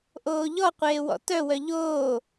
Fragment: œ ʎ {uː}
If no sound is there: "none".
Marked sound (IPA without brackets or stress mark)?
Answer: oː